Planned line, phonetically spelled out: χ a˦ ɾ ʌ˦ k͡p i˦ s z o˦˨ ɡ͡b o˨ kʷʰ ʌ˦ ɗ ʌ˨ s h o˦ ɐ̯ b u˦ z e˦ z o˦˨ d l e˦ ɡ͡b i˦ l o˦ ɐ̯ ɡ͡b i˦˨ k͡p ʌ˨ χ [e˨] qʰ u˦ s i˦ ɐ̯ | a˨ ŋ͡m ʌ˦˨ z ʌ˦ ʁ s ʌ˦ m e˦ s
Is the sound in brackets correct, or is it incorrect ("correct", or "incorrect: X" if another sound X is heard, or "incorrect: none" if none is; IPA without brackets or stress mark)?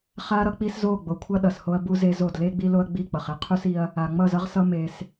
incorrect: e˦